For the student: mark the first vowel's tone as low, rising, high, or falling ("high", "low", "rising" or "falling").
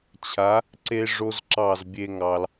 rising